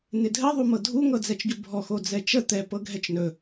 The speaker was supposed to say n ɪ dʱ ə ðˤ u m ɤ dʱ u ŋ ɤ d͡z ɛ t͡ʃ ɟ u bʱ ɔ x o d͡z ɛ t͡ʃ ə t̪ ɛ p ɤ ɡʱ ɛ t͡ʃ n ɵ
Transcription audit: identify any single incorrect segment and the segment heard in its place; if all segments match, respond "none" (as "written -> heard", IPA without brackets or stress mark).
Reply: none